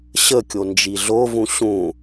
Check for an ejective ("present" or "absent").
absent